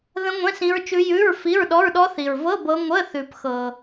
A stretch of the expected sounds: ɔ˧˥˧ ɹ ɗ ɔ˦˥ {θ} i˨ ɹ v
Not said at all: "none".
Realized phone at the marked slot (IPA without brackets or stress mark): θ